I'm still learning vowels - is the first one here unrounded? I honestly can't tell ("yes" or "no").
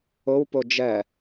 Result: no